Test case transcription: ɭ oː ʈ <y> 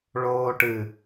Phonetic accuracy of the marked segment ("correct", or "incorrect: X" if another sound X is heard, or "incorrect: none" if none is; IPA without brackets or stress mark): incorrect: ɨ